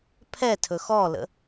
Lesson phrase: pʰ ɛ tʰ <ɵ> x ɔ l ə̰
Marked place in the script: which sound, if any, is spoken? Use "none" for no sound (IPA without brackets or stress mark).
ɵ